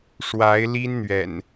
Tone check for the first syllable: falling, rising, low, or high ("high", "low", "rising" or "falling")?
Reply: rising